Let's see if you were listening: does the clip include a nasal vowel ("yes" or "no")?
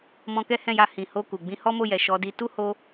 yes